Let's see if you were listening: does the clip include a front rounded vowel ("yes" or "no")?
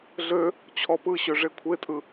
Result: yes